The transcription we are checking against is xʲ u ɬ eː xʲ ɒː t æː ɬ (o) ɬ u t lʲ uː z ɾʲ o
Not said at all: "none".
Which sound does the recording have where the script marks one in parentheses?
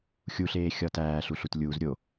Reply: u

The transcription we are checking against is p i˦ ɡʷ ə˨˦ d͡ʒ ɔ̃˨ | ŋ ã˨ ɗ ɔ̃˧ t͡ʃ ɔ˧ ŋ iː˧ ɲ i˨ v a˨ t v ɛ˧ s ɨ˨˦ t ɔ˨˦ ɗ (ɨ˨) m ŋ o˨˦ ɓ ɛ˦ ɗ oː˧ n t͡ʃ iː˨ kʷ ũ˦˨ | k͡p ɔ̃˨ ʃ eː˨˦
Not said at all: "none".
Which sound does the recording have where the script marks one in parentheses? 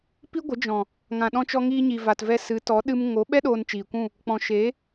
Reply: ɨ˧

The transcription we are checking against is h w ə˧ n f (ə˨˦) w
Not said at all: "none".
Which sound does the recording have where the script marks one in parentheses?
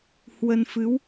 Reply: ɨ˨˦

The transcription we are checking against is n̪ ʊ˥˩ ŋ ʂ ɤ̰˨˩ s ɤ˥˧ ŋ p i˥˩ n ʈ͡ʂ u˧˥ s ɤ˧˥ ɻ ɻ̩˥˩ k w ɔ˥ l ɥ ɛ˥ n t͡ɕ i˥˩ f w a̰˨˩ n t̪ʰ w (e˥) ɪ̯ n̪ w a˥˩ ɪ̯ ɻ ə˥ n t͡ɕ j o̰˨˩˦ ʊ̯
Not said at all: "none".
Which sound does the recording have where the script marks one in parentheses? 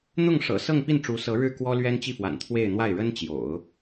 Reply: e˥˧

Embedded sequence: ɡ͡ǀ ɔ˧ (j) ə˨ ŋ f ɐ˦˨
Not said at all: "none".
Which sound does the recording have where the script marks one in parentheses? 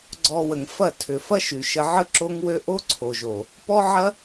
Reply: w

